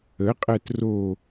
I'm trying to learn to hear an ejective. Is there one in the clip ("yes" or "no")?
yes